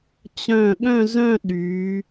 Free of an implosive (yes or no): no